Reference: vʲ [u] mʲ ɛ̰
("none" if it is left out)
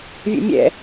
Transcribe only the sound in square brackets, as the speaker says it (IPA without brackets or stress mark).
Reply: ṵ